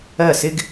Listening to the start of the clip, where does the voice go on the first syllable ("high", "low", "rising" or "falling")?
falling